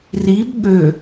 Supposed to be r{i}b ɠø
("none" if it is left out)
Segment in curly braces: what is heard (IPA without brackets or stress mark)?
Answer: i